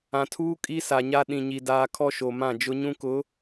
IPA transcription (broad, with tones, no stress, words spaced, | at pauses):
ã˨tʰuː˦ kʼi˦sa˨ɲa˦ ɗĩ˨ɲi˨ daː˦ kʰɔ˦ʃo˨mã˦˨ d͡ʒʊ˦ɲũ˦kʊ˨˦